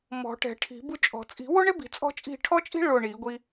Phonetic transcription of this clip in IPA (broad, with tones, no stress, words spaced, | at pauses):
mɔ̤˨˩˦ʈɛ̤˨˩˦ ʈʰi̤˨˩˦bu˥˨t͡ʃʼɔ̤˨˩˦ t͡sʼi̤˨˩˦wʊ˥ɳe˥bi̤˨˩˦ t͡sʼɔ̤˥t͡ʃʼi̤˥˨ ʈʰɔ˥t͡ʃʼi̤˥ ɭʊ˥˨ɳi˨˩˦ɡʷi˥